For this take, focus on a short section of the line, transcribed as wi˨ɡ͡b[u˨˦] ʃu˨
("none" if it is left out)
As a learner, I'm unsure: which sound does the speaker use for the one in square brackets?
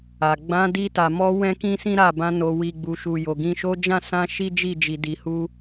u˨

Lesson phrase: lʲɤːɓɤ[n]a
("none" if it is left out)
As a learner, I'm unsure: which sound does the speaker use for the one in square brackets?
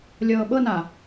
n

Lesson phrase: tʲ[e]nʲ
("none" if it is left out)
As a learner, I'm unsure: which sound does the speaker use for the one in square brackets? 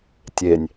e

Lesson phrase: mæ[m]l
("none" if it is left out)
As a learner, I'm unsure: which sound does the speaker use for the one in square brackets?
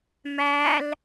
none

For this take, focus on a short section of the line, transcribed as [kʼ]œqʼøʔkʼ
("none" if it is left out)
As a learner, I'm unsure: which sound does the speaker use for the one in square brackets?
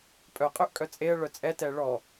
pʼ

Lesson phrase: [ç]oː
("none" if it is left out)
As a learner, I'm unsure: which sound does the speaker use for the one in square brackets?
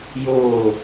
j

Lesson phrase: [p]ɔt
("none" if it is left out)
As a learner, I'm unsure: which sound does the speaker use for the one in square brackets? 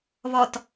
β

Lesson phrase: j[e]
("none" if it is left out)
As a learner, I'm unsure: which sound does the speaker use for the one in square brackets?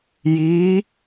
i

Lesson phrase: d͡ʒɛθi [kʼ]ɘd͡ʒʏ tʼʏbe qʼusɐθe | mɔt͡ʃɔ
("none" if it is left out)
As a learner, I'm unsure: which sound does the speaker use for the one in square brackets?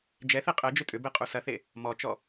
qʼ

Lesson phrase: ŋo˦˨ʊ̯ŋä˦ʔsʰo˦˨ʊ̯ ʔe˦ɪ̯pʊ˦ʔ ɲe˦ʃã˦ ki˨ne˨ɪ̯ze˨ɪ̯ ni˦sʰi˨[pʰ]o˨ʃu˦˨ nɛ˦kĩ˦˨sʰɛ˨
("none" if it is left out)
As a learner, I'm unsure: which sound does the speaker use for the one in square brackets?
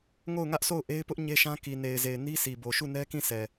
b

